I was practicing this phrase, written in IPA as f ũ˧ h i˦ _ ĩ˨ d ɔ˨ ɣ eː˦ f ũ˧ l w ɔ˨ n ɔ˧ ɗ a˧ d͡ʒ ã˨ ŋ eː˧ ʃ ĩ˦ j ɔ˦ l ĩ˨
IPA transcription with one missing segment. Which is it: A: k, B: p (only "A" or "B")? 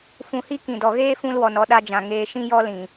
A